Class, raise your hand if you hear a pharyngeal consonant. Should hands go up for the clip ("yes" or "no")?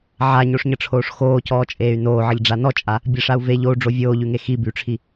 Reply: yes